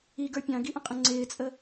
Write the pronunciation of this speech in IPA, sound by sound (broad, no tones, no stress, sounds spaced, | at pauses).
i ɡ ə˞ pʲ ɑ̃ ɡ i ʔ ə̃ qʼ ə̃ ŋ͡ǀ ɪː t͡sʼ ə